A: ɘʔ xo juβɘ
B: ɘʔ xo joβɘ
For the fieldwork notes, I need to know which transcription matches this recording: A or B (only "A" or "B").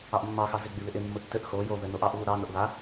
B